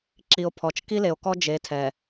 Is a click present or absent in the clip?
present